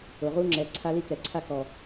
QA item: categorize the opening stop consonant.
click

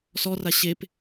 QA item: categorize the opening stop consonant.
plain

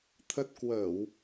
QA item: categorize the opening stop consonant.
aspirated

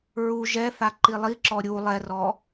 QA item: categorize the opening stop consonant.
click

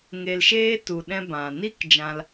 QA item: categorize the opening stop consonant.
plain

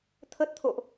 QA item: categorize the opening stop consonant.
aspirated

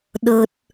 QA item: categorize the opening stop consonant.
implosive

